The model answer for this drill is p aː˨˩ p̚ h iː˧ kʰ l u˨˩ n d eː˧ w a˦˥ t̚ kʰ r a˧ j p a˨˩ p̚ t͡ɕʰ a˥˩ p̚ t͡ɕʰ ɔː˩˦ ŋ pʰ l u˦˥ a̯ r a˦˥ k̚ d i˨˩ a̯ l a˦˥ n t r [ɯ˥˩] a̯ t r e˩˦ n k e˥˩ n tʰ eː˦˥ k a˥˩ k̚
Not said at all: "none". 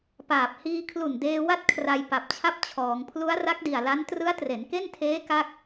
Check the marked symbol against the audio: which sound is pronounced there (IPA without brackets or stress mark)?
ɯ˦˥